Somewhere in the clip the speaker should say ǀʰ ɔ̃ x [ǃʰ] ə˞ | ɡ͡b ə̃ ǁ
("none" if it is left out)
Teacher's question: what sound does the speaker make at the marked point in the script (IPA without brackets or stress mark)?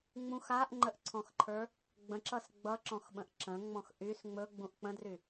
ǃʰ